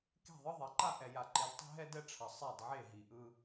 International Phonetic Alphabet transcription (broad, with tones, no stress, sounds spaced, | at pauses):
k e̤˦˨ ðˤ ɯ˦ ðˤ ɛ˨ ǃ a˦˨ ʔ ɛ˨ j a˨ ǃ e˨ d tˤ e̤˦ ɦ ɛ˦ d ɛ˦ ʈ͡ʂʰ ʌ˨ sˤ ɛ˦˨ d ʕ e˦˨ ɦ i˨ ʔ ɯ˦